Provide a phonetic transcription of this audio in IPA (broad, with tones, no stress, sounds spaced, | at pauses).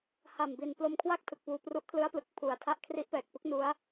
h a˨˩ m b i˨˩ n p l o˧ m kʰ w a˥˩ k̚ tʰ ɯ˨˩ k̚ p uː˧ p r u˦˥ ʔ kʰ l ɯ˦˥ a̯ p l ɯ˨˩ k̚ pʰ u˨˩ a̯ tʰ a˥˩ ʔ kʰ r i˦˥ ʔ p ɛː˨˩ k̚ p ɯ˦˥ k̚ n u˦˥ a̯